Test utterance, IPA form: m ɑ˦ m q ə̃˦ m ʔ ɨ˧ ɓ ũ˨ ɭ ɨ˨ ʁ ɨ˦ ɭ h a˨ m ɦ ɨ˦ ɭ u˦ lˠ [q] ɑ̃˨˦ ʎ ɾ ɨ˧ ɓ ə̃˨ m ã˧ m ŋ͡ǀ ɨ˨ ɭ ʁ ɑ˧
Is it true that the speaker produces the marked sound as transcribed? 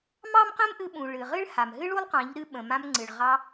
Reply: yes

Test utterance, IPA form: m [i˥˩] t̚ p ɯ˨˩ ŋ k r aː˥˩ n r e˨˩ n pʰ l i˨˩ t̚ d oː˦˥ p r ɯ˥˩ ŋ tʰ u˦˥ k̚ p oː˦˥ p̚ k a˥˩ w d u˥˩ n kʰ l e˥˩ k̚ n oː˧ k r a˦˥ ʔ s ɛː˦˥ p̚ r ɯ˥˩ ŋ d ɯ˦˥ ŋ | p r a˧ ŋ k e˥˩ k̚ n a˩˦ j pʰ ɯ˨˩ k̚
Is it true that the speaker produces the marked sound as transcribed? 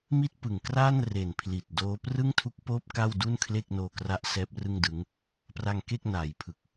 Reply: yes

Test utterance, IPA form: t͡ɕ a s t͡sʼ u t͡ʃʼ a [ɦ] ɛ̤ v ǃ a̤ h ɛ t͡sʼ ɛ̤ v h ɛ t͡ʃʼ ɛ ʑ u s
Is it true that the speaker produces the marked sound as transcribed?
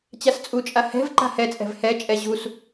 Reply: no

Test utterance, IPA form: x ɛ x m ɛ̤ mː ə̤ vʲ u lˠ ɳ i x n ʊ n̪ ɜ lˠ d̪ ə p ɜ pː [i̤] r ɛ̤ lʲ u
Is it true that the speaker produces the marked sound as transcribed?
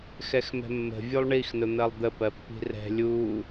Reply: yes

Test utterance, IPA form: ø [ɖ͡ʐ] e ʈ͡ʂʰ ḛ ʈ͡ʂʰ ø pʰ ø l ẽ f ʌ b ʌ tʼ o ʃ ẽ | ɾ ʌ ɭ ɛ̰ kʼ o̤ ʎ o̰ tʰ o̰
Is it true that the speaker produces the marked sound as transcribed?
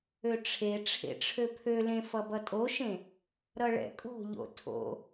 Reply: no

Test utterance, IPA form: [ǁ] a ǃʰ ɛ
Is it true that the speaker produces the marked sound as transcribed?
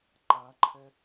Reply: no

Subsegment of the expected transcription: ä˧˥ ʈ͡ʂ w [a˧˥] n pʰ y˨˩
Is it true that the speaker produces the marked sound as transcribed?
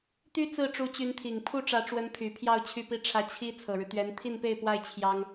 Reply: no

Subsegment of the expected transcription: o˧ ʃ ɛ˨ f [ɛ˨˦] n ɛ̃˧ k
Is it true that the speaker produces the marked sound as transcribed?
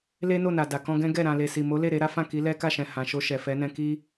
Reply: yes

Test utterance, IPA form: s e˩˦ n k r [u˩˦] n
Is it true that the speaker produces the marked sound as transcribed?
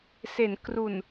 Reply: no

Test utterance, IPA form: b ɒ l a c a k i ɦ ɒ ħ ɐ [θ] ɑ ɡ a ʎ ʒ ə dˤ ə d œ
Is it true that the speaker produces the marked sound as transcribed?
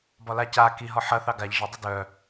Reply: yes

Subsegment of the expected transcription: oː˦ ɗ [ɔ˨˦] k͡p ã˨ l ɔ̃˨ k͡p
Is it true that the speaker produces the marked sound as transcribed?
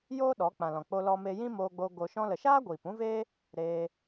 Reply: yes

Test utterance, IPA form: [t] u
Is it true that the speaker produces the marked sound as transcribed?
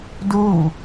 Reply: no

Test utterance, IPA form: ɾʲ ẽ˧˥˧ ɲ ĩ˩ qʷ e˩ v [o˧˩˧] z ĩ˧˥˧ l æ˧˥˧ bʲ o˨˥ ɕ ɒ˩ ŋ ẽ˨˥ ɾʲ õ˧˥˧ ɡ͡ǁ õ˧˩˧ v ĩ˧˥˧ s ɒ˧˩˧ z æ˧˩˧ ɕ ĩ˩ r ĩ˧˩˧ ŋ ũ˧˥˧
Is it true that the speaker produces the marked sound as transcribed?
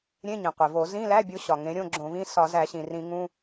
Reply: yes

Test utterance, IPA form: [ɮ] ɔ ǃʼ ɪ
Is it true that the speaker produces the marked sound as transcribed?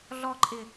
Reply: yes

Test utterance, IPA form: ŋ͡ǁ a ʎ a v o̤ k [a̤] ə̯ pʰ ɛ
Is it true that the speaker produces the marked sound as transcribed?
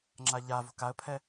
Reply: no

